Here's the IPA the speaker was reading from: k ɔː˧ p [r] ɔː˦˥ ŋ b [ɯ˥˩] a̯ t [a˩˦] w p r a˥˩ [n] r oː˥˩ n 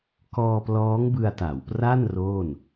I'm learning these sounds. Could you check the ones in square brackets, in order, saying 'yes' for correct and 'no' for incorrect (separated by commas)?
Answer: no, no, yes, yes